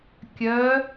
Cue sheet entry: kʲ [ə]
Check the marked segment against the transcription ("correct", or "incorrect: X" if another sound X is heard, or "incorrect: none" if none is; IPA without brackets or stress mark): incorrect: œ